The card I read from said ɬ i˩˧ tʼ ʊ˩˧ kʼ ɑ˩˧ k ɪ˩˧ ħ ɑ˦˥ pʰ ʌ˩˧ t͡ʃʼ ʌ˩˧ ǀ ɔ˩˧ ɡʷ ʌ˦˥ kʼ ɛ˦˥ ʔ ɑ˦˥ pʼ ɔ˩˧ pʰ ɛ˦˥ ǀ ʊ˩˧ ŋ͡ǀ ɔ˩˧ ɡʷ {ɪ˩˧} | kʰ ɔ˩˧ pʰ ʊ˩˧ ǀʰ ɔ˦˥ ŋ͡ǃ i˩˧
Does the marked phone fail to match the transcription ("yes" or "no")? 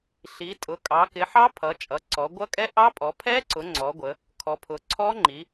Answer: yes